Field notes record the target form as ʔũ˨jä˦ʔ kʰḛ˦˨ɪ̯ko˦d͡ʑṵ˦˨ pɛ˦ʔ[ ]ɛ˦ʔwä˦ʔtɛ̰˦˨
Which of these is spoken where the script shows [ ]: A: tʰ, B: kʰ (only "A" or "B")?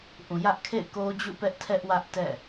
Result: A